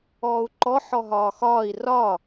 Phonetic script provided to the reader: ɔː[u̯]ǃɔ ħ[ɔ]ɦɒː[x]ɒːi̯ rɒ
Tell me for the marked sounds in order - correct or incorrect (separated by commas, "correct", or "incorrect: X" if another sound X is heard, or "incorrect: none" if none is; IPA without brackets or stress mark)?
correct, correct, correct